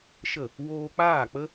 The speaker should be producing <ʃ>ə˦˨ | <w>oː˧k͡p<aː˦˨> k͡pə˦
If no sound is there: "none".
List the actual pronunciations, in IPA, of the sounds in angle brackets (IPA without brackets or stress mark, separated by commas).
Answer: ʃ, w, aː˦˨